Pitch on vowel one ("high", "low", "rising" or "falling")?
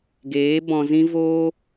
rising